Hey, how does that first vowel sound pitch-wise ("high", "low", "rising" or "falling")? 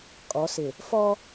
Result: rising